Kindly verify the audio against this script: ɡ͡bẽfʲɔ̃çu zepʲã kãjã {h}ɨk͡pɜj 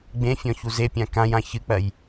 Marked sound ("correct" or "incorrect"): incorrect